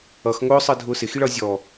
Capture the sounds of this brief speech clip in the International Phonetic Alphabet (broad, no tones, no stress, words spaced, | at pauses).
ʌx ŋʊːsˤɜ dʱʊːsɪxiɭ ʌ zʲɔ